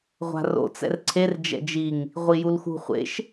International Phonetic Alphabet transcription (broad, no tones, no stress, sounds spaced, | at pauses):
ʁʷ a̤ r o̰ t͡s ɛ̰ r ǀʰ e r d͡ʒ ɛ̰ d͡ʒ i ŋ | ʁʷ i j u l x ṳ χʷ ḛ ʃ